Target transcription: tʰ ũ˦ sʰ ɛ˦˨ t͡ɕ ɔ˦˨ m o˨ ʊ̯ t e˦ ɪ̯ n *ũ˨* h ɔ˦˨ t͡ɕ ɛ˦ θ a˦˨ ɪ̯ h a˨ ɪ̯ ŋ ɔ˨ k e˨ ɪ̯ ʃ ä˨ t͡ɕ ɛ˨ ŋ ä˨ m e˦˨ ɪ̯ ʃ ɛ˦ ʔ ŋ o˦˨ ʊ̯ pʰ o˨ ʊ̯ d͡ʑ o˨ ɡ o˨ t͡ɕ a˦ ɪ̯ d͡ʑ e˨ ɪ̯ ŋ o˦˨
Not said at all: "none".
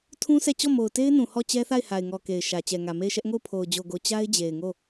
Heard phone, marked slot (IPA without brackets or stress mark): ũ˨